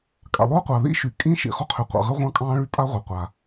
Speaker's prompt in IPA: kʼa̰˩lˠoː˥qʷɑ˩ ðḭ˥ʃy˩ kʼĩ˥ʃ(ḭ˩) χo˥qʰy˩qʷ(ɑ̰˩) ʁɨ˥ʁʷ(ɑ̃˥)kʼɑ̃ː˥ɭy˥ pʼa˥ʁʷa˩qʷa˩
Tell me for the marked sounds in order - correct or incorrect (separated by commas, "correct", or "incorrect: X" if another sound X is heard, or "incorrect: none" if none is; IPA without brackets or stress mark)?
correct, correct, correct